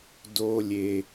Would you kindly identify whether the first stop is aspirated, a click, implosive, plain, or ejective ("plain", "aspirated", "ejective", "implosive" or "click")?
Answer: plain